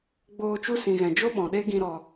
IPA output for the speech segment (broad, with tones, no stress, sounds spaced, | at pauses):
ɡ͡b oː˧ t͡ʃ u˦ s ĩ˨ ɣ ɛ̃˨ d͡ʒ o˦ ɓ ɔ̃˨ ɗ e˦ ɡ ĩ˧ ɾ ɔ˧